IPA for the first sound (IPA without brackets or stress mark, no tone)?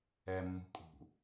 ɛ